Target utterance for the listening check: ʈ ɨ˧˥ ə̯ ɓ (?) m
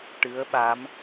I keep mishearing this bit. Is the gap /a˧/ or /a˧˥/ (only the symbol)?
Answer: a˧˥